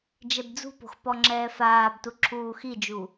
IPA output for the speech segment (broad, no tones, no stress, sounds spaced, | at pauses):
d͡ʒ ɛ b d͡z ṳ p o̤ x p ɔ ŋ͡ǁ ɛː f aː b t u ǁʰ uː x i d͡ʒ u